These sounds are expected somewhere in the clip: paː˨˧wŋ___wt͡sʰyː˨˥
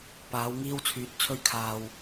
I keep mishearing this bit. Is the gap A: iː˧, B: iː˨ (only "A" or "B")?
A